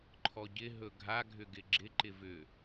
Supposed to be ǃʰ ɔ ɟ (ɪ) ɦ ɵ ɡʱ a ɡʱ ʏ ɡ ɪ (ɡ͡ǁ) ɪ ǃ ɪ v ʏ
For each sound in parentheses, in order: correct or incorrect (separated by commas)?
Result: correct, correct